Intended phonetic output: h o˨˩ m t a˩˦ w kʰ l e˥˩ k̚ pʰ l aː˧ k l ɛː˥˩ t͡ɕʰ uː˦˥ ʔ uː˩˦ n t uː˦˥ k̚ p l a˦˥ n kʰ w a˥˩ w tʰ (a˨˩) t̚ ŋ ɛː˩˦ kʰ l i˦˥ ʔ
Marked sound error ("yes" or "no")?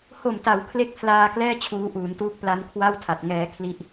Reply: no